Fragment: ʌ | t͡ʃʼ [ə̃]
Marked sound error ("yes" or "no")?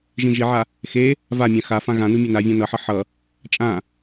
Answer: yes